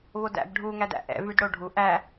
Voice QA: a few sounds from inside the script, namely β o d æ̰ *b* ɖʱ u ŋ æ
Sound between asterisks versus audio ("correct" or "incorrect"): correct